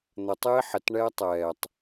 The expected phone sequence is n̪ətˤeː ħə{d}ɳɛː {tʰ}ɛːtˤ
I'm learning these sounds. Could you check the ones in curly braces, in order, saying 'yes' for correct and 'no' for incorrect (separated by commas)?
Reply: no, no